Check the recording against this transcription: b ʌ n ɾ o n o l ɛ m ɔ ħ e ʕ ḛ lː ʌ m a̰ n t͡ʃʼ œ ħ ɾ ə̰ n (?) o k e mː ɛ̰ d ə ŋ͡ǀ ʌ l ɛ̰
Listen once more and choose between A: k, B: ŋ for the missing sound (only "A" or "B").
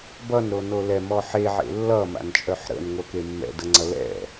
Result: B